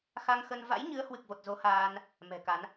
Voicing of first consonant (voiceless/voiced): voiceless